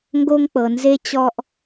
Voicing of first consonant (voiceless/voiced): voiced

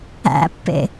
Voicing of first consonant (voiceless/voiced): voiceless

